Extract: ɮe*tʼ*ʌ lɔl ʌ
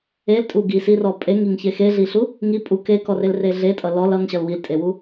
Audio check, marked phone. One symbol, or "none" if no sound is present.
tʼ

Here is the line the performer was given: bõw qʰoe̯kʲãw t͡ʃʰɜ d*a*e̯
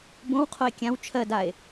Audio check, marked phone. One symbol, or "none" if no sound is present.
a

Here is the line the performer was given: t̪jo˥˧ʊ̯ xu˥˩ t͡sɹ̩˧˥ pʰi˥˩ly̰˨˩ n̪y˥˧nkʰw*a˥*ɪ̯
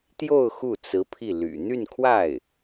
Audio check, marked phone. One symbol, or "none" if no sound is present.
a˥˩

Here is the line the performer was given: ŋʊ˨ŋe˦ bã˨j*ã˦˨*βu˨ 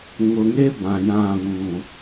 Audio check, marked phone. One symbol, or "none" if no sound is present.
ã˦˨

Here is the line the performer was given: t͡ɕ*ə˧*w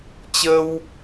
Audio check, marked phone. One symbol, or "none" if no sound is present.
ə˧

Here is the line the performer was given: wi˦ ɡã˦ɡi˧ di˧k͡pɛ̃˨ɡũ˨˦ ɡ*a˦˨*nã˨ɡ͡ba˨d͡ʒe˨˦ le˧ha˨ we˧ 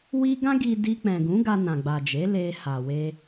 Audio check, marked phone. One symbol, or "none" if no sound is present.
a˧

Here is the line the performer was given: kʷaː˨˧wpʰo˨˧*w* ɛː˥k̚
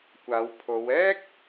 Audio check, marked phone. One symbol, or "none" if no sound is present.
w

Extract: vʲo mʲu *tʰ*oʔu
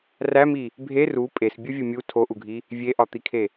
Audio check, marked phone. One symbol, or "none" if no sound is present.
tʰ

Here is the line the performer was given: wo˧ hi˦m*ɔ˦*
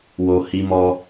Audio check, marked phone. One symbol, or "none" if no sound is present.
ɔ˦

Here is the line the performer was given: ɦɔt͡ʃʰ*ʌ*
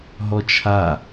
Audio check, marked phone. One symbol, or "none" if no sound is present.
a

